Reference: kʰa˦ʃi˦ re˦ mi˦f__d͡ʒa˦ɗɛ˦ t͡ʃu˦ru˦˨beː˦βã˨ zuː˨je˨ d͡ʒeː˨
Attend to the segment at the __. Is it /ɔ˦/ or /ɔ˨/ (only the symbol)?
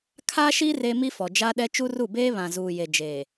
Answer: ɔ˨